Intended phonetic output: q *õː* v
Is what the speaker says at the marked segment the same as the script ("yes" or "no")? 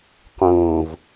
yes